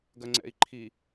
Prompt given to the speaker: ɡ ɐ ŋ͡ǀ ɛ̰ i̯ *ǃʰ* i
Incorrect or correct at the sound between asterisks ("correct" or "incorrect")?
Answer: correct